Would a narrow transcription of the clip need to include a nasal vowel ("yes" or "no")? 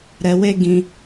yes